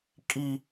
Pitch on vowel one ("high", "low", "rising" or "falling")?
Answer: high